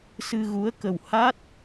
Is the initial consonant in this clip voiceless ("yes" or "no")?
yes